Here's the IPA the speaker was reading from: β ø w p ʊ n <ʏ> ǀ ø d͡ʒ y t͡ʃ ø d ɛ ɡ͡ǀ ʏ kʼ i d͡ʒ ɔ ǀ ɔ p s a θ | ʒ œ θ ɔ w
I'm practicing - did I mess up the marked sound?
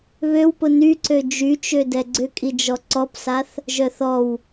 yes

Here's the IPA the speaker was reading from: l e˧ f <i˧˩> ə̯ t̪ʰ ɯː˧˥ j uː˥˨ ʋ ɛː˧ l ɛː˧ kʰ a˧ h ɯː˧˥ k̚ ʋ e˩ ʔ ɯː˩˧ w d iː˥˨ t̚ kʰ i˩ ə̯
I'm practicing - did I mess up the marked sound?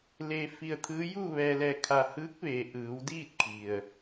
yes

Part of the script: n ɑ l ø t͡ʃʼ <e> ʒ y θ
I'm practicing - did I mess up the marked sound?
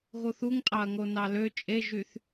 no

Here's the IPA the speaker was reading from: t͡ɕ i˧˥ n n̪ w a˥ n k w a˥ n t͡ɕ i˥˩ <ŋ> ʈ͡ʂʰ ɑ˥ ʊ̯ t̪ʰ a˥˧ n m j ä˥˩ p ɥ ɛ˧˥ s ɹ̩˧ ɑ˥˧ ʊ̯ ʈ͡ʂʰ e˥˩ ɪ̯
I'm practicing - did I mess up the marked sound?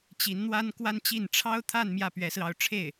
yes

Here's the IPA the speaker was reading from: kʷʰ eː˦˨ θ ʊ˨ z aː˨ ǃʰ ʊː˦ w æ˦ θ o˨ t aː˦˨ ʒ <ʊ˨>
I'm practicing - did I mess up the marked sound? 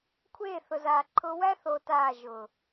yes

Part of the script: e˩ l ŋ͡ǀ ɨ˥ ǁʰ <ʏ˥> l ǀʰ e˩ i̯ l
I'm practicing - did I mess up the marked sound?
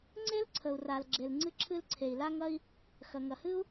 yes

